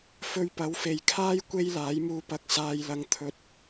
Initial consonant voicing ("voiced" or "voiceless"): voiceless